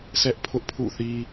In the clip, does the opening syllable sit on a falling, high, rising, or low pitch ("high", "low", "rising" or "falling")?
high